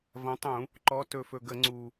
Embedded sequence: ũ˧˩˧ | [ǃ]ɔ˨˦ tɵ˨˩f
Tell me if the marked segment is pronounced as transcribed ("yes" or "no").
yes